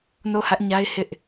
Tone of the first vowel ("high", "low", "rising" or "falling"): falling